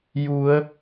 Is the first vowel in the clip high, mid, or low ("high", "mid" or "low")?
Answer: high